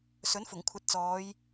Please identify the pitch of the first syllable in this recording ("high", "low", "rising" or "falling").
rising